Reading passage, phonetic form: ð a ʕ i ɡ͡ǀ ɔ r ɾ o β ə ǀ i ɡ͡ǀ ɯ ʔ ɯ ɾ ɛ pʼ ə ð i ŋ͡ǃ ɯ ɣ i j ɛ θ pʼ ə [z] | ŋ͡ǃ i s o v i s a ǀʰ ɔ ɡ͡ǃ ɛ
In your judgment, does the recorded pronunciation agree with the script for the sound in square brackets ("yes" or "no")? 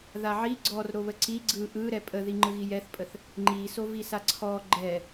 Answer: no